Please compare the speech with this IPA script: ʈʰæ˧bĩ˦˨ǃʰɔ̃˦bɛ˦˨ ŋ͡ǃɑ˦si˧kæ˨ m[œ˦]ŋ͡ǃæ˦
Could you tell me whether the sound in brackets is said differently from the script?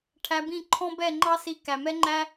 yes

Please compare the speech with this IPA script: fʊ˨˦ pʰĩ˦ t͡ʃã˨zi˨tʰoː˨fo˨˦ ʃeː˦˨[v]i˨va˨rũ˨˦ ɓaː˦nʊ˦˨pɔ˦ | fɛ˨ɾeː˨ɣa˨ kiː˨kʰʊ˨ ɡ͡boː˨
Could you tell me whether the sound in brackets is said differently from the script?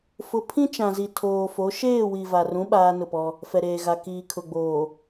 yes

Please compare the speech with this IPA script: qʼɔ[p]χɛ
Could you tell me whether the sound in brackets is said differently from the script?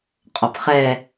no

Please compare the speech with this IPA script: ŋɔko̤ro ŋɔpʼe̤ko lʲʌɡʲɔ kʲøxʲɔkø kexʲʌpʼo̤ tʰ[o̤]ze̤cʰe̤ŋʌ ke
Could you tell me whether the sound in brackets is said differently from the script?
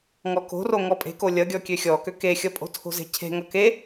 no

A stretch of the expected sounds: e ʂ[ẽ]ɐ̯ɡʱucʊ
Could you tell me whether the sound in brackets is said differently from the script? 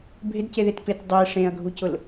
no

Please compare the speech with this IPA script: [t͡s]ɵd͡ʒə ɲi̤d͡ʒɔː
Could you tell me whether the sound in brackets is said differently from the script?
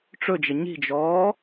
yes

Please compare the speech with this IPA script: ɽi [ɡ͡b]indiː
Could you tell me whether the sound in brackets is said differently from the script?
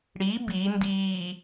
yes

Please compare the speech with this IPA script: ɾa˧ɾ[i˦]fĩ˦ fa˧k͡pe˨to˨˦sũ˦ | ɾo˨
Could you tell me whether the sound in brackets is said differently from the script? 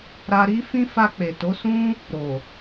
no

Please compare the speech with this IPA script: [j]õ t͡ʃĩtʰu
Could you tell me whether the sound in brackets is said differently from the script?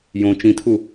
no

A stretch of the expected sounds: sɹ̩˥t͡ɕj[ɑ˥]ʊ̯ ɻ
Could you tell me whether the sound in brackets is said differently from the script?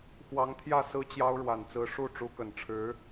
no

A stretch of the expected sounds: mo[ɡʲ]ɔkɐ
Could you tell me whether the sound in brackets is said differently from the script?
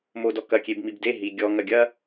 yes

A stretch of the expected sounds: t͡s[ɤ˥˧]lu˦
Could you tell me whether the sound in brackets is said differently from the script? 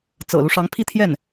yes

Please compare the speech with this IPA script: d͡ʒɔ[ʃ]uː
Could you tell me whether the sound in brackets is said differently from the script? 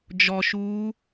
no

